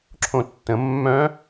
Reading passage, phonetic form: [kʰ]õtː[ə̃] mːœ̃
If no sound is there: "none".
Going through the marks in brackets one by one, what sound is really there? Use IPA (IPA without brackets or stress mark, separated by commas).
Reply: ǁʰ, ə̃